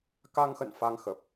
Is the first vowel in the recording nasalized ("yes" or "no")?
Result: no